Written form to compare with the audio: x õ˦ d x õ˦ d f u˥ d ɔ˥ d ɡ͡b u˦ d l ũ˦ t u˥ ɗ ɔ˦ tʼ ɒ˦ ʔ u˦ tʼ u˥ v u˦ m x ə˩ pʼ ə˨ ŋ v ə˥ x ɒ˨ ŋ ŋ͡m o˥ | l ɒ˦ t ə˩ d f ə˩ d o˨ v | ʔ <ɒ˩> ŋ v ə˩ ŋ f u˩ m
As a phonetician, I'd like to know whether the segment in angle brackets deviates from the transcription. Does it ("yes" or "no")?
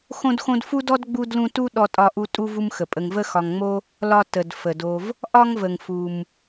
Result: yes